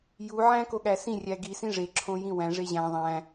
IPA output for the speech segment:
j u ʕ æ̃ k o ɠ æ s ĩ rʲ æ ɡ i s ĩ ʐ e ǁʰ õ j ĩ w æ̃ ʐ e ʑ æ̃ ðˤ æ̃

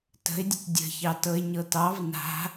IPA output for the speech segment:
t ə̤ ɪ̯ dʲ ə̤ t dʲ ə̤ ç ɑ t ɤ ɪ̯ ɲ ɤ t ɑ v n a̤

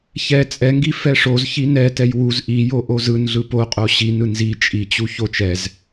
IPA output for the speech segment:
ç ɛ t͡sʼ ɛ ŋ ɡ i f ɛ ʂ o z ç i n ɛ t ɛ j w u z ʔ i j o ʔ o z ɯ n ɮ ɯ p o qʼ o ɕ i n ɯ n z i t͡ʃʼ i t͡ɕ u ç o t͡ʃ ɛ z

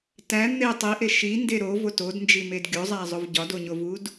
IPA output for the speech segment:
t æ n̪ e tˤ i ʔ e ʃ i n d e ɾ o v o t o d n d͡ʒ i m e d ɡʲ o zˤ æ zˤ o v ɟ ɒ d o ɲ o v u d

